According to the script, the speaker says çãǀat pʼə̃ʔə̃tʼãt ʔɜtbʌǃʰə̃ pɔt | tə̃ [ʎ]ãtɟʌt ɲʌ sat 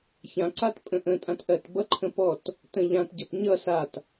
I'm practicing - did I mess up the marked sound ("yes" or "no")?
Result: no